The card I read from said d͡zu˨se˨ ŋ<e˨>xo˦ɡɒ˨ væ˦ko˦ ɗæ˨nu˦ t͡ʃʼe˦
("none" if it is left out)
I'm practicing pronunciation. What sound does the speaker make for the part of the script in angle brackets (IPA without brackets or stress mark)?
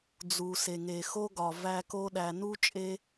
e˨